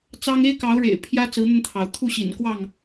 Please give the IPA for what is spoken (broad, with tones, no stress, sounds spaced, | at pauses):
t͡s ɑ˦ ŋ e˦ ɪ̯ k ɑ˨˦ ʊ̯ ɻ ḛ˨˩ ɪ̯ pʰ j ä˦ t͡s ɹ̩˨˦ n̪ ə˧ n t̪ʰ ɑ˩ ʊ̯ t̪ʰ u˥˨ ɕ ḭ˨˩ n k w ɑ˥˨ ŋ